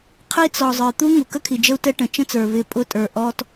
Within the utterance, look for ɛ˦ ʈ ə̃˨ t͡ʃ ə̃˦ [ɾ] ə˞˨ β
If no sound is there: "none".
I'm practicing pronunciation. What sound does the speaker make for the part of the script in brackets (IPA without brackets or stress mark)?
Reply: t͡s